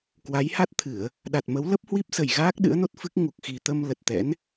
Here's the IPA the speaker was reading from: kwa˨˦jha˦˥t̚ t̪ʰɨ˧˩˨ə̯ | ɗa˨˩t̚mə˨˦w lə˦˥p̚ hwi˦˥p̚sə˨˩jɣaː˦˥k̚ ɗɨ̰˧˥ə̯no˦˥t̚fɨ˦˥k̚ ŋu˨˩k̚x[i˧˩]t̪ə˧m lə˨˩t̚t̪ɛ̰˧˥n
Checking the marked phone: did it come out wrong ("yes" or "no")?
yes